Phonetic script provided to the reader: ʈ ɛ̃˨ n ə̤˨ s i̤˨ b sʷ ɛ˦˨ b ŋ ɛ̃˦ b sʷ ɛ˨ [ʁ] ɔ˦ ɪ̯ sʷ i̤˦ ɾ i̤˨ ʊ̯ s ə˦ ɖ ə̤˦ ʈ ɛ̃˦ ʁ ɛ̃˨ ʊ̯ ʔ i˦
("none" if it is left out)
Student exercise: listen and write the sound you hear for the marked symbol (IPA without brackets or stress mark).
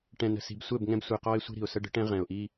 q